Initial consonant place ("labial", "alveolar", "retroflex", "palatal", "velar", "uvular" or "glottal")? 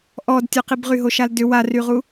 glottal